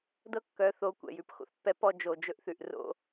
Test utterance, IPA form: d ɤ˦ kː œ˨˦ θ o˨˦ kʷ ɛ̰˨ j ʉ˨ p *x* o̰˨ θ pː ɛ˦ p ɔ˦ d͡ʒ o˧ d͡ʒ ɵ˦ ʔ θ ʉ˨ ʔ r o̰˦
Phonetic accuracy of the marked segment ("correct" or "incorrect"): correct